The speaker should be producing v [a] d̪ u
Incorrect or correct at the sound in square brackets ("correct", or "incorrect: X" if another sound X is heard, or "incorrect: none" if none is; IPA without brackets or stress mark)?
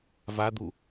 correct